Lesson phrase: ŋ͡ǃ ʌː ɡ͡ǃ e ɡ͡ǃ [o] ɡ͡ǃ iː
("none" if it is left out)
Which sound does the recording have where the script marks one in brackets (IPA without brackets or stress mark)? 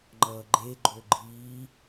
o